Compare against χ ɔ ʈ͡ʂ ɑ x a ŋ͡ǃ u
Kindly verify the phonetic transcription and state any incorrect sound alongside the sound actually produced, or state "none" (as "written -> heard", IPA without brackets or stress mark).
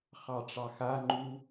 ɔ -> ɑ